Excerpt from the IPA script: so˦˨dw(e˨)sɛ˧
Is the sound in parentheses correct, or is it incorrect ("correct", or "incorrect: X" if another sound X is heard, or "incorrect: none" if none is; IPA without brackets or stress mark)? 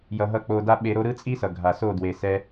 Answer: correct